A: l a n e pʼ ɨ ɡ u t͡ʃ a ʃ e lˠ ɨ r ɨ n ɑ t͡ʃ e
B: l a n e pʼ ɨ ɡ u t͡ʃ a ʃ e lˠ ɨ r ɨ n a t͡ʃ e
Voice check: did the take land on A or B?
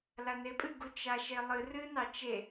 A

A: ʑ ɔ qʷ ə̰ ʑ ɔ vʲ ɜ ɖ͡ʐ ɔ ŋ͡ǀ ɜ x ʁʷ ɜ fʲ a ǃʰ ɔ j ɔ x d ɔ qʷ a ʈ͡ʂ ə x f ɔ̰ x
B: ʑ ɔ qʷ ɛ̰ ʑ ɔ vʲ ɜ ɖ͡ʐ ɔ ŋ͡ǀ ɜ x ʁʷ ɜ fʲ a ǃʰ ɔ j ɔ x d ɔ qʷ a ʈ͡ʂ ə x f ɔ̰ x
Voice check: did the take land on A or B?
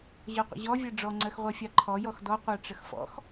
A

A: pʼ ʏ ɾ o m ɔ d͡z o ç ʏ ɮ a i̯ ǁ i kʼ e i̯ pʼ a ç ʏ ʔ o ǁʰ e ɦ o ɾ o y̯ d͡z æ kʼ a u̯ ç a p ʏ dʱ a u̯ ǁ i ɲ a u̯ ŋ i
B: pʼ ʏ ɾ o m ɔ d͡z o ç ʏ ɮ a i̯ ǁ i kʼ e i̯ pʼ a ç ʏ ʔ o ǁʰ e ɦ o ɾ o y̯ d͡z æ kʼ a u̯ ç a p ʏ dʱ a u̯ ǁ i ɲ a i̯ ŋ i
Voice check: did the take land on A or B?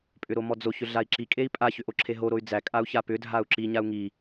A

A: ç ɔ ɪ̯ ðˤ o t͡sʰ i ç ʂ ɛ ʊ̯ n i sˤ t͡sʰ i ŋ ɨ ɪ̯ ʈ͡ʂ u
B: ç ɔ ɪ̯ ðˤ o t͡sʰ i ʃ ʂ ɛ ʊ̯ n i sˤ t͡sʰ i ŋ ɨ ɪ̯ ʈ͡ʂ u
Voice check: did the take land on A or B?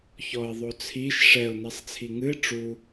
B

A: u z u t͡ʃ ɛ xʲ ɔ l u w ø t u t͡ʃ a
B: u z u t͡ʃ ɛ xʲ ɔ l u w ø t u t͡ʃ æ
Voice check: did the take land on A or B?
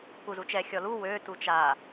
A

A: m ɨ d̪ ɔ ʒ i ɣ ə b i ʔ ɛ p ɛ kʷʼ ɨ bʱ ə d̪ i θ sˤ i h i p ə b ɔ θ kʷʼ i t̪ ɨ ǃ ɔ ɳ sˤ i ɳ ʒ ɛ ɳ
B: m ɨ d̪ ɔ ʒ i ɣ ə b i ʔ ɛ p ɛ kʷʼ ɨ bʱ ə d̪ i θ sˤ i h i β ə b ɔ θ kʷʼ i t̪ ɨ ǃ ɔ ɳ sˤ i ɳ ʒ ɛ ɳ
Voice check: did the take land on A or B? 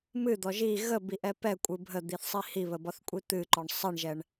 B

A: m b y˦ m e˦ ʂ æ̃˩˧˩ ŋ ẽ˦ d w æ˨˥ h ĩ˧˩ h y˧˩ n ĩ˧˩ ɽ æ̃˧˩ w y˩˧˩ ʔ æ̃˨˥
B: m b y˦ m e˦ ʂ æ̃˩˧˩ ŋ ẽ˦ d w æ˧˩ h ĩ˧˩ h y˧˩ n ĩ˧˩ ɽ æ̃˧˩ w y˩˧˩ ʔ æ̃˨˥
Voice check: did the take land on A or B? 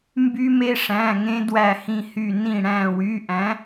B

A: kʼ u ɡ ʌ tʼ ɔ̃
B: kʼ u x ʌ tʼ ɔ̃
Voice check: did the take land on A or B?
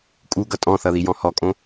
A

